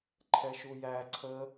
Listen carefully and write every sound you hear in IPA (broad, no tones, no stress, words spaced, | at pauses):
ǃʰɛʃujæ ǀʰə